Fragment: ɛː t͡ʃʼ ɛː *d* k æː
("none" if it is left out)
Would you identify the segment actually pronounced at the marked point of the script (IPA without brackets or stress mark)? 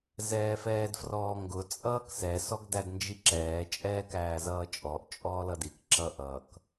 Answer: none